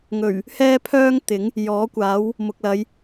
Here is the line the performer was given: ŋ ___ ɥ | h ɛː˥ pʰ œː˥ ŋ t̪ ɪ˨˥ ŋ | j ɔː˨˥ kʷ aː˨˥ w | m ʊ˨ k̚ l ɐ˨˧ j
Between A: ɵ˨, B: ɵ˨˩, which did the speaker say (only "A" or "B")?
B